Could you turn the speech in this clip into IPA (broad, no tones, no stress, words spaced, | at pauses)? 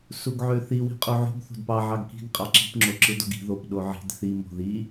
suɡʕøθi wi̤qʼuʕo̤ɡ θo̤dpɑ ʕɑɡki̤ɡ qʼɑǁi̤p ŋ͡ǁoǁɯdoɡi̤ ðop ɗoʕi̤d θi mo̤ði